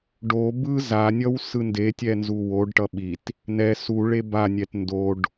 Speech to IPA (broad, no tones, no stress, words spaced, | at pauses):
ɖo bɯ zanʲʌw sɯndetʲɛ nzuwoɖʈʌ ɓit | nɛ su ɭebanʲɛt ndoɖ